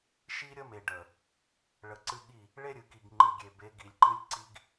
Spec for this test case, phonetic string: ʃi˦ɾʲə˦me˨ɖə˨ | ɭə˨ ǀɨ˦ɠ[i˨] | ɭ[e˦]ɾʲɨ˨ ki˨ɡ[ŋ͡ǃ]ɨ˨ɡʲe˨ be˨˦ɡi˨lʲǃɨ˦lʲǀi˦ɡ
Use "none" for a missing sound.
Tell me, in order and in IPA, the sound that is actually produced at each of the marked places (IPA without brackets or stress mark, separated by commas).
i˦˨, e˦, ŋ͡ǃ